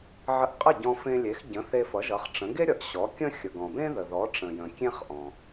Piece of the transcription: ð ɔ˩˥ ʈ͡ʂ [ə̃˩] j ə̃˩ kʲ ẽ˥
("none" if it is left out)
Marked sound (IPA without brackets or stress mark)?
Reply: ə̃˩